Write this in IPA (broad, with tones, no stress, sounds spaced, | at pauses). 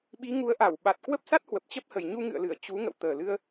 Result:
ɓ i˨˦ ŋ u˨˦ ə̯ ʔ a˧˩ w ɓ a˨˩ t̚ k w ə˦˥ p̚ s a˦˥ t̚ h w ə˨˩ p̚ t͡ɕ ə˦˥ p̚ h ə˨˩ j ɲ u˧ ŋ ɨ̰˧˨ ə̯ l ɨ˧˩ ə̯ t͡ɕ u˨˦ ŋ ə̰˧˨ w t̪ əː˨˩ l ɨ˧ ə̯